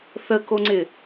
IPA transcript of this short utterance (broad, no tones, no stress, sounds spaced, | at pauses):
θ ə k o ŋ͡ǀ ɪ